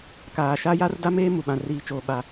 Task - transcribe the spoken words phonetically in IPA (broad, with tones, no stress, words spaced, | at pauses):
kaː˨ʃa˦ ja˦rda˦meː˦ mu˨ɓã˨riː˨t͡ʃoː˨ ɓa˨